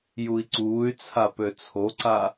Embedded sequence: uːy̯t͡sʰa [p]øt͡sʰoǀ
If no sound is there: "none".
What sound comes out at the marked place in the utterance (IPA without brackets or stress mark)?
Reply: p